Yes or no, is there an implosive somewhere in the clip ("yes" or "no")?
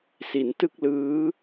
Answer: no